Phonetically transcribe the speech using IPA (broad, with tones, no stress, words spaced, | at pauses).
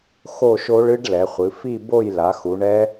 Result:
xo˥˧ʃo˦˥ɭ ɨ˦˥ɖ lɛ˩˧χʷɨ˩˧ fi˥˧bo˥˧jla˩˧ xu˩˧ɳɛ˦˥